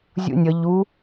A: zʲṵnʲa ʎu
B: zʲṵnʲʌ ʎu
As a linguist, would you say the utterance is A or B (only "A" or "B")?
B